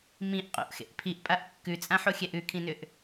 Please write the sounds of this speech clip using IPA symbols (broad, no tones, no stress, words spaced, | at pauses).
mĩʔ qʼo̰ʔxḛʔ pʰiʔpʼaʔ kːʉt͡sʼãħoxʲɛʔ ʉkʰĩnʏʔ